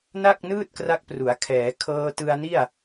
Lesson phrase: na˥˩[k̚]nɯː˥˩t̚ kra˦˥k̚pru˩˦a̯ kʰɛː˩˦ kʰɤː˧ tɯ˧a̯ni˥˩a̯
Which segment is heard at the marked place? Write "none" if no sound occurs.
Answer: k̚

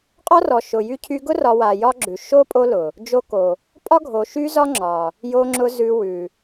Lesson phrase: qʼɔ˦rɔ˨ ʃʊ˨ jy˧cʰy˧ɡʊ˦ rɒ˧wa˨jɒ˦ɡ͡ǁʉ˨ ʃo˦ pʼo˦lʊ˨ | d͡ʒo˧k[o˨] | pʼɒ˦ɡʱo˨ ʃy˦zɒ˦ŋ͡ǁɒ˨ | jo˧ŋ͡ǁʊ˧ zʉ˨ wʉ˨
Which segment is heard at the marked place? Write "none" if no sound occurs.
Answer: o˨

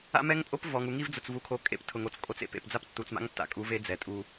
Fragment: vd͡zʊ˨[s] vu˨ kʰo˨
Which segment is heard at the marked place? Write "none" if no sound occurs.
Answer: t͡s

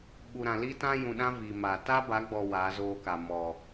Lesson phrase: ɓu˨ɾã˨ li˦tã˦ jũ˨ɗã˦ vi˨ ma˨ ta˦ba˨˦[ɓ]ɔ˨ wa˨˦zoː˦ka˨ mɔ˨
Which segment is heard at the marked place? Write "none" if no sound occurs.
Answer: ɡ͡b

